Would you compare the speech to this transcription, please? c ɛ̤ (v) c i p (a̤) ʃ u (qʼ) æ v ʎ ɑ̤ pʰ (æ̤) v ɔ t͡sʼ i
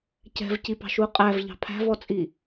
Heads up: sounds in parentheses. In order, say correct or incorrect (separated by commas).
correct, incorrect, correct, correct